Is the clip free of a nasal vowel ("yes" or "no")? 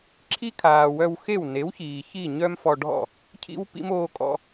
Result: yes